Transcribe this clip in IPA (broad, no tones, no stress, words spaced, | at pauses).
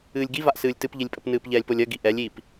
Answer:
ɨːlʲɡivaʔsɨːlʲ tɨpʎilʲpʼəp nɨːpʎɛːlʲpolʲɜ ɡiʔɛlʲiːp